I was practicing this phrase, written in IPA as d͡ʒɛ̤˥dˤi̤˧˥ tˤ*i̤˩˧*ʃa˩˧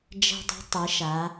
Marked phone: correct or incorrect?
incorrect